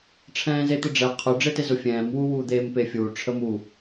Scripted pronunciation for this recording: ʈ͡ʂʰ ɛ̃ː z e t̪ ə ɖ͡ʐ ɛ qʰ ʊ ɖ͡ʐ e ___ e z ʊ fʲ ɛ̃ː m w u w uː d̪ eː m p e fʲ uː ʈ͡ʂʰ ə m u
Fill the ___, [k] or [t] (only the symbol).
t